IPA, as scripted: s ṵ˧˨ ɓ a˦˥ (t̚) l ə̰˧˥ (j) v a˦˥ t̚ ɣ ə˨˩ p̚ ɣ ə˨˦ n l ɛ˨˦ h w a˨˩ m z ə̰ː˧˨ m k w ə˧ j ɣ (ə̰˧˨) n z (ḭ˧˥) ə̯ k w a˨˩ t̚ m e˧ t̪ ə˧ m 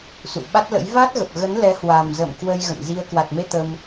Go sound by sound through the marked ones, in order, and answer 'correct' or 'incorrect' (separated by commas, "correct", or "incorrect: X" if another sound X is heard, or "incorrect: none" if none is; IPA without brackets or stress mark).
correct, correct, correct, incorrect: i˧